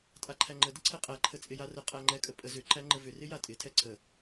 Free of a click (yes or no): no